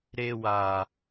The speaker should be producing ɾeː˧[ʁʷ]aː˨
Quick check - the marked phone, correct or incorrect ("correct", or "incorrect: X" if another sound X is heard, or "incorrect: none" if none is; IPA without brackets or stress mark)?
incorrect: w